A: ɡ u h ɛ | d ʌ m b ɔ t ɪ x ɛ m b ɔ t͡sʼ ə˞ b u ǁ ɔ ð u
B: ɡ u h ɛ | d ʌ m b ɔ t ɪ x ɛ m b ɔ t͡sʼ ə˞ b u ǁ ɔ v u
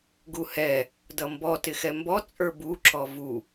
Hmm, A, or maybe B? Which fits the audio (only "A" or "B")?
B